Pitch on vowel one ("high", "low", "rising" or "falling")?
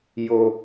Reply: low